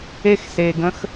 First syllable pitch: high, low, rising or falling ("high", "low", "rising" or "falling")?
high